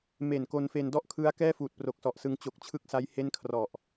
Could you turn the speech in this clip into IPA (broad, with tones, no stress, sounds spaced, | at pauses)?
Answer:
m e˨˩ n k o˧ n f e˧ n d ɔ˥˩ ʔ kʰ ɯ˦˥ a̯ k ɛː˥˩ f uː˨˩ t̚ p r o˨˩ k̚ s ɔ˨˩ ʔ s ɯ˧ ŋ t͡ɕ o˨˩ k̚ t͡ɕʰ ɯ˦˥ k̚ s a˦˥ j h e˥˩ n kʰ r ɔ˨˩ ʔ